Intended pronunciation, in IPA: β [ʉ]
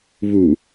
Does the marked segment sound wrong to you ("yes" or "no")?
yes